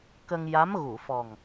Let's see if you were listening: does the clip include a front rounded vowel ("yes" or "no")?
no